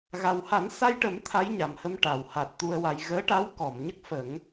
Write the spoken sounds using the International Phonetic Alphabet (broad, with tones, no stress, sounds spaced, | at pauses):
ɣ a˨˩ w h a˨˩˦ n s a˧ j ʈ ə˨˩˦ m t̪ʰ a˧˥ j ɲ a˨˩ m h ə˧ m ʈ a˨˩˨ w h a˨˩ t̚ t̪ u˧ ə̯ w a˧ j ɣ əː˧˥ ʈ a˧˥ w k ɔ˨˩˨ m ɲ ə˦˥ k̚ f ə˨˩˦ ŋ